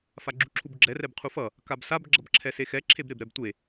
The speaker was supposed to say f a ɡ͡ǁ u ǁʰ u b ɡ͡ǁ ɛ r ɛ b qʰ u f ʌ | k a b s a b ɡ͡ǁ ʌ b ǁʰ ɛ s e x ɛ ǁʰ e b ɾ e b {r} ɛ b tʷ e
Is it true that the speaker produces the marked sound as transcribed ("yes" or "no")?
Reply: no